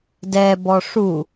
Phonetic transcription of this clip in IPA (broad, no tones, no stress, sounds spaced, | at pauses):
d ɛ b ɔ ʂ u